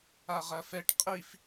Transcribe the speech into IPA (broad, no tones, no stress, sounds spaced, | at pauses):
a ʁ ɐ f ɛ ʈ qʼ i f